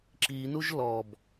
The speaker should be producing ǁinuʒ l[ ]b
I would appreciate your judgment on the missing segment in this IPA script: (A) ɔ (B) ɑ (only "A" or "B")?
A